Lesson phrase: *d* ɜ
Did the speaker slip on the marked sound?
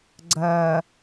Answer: yes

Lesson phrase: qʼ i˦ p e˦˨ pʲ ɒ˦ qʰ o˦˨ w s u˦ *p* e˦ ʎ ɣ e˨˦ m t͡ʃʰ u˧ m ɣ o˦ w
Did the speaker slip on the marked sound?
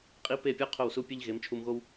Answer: yes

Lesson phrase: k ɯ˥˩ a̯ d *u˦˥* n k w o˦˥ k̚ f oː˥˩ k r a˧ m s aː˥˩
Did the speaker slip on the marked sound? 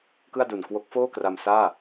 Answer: yes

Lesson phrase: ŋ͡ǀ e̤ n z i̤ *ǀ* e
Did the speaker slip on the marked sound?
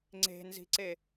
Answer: no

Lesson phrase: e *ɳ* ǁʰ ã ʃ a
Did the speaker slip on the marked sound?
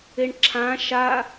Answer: no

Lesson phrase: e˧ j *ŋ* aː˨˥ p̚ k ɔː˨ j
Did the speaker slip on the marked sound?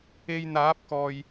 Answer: yes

